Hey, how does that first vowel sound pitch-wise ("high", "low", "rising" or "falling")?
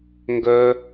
high